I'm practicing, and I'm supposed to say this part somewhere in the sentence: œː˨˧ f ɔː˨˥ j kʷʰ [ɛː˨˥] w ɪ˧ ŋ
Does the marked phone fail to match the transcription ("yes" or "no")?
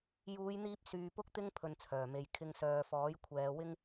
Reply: yes